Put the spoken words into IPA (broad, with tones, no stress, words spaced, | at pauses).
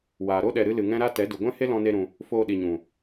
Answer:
waː˨ɾo˦ ɗɛ˨ɾɨ˧lɨ˨ ŋɛ̃˦ɾa˦ tɛ˨˦du˨ɡʷɛ̃˦he˦ lɔ̃˦ne˦ɾũ˧ | foː˧ɗi˨ɲũ˨